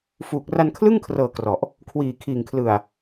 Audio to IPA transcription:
f uː˨˩ k̚ r a˧ n kʰ l ɯ˥˩ ŋ kʰ r ɤː˨˩ k r ɔ˨˩ ʔ | kʰ w iː˨˩ kʰ iː˨˩ ŋ kʰ l ɯ˨˩ a̯

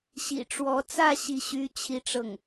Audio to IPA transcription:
ɕ ḭ˨˩ ʈ͡ʂ w ɔ˧˥ t͡s ä˥˧ ɕ i˥˩ ɕ y˥ t͡ɕʰ i˥ ʈ͡ʂ ɤ˥˩ ŋ

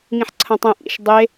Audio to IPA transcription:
ŋ ĩ ħ ǀʰ ɐ̃ tˤ ɛ̃ ʔ ḭ ʃ dˤ e

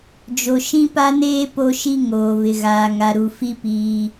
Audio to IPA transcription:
d͡ʒ o˨ ʃ ĩ˦ p a˦ n eː˦ p o˦ ʃ i˦ ŋ oː˨ β ɪ˨ ɣ aː˨ ŋ a˨ ɾ u˨ f i˦ p iː˦

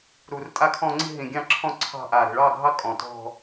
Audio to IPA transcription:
ɾ u˨˩ r tʼ a˥˧ kʰ ɔ̃˥˧ ŋ͡ǀ i̤˥˧ ɦ ĩ˨˩ ɡʲ ɑ̃˥˧ ǁʰ ɔ̃˥˧ ǀʰ ɑ̤˥˧ ʔ a˨˩ ɾ i̤˨˩ ɭ ɑ˥˧ ɡʱ ɑ˥˧ kʼ ɔ̃˨˩ t ɔ̤˥˧

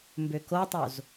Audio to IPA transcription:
m b ø k o tˤ o z

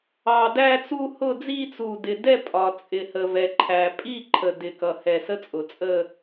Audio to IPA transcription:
ɑ˨˩ d æ˥˧ t͡s u˥˧ h ʊ˥˧ d͡z i˥˧ t͡s u˨˩ d ɪ˨˩ d ɛ˥˧ pʼ ɒ˨˩ t͡sʼ ɪ˨˩ h ə˨˩ v ɛ˨˩ ǃʰ æ˨˩ pʼ i˥˧ ǃʰ ə˨˩ d ɪ˨˩ k ʌ˨˩ h ɛ˨˩ s ə˥˧ t͡sʼ ʊ˨˩ t͡sʼ ə˥˧

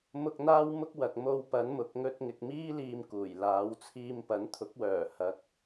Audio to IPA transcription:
m ʊ˧ k̚ n̪ aː˥ w m ʊ˥ k̚ w ɐ˨ k̚ m o˧ w p ɐ˨˥ n m ʊ˨˥ k̚ ŋ ɵ˧ t̚ ŋ ɪ˨ k̚ m iː˥ l iː˧ m k uː˨˩ j l aː˨˥ w t͡sʰ iː˧ m p ɐ˨˥ n t̪ʰ ʊ˨˥ k̚ w œː˨˩ h ɐ˨˥ k̚

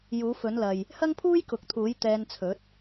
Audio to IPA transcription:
j uː˨˥ f ɵ˨˥ n l ɐ˨ j | h ɐ˥ ŋ pʰ uː˥ j k ʊ˨˥ k̚ t̪ʰ uː˨˥ j t̪ ɛː˧ n t͡sʰ ɵ˨˥ t̚

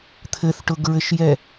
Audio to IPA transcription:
t̪ʰ ɘ θ ʈ ʊ ɡ ɹ ɘ ʃ j ɛ

